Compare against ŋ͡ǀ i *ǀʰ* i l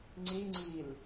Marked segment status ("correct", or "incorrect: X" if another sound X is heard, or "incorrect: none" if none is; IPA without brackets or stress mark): incorrect: ŋ͡ǀ